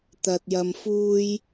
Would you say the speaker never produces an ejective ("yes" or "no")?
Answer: yes